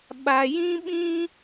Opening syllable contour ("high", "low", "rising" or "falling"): low